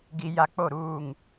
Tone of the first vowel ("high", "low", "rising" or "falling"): low